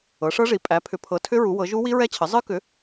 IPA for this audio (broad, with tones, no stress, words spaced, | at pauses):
ɤ˩˥ʂɤ˦˥ʐi˩˥ pʼæ˩˥pʰʏ˩˥pʰɤ˩˥tʰʏ˦˥ ɹu˩˥wɤ˩˥ ʒu˦˥wi˦˥ɹɛ˦˥t͡ɕʰə˩˥ zˤɨ˦˥kʏ˩˥